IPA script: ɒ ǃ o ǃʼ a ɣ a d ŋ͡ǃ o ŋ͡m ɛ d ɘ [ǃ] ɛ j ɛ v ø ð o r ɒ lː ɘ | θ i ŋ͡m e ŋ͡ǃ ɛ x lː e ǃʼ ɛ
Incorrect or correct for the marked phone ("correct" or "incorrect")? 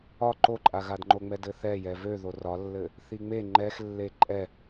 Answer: incorrect